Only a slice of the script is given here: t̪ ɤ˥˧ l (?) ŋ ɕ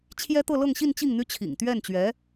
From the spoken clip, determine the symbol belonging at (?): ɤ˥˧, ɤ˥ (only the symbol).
ɤ˥˧